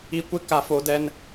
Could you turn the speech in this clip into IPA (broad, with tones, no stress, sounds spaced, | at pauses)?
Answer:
i˦˨ kʷ ɪ˦ k a˦ f o˦ d ɛ˦ n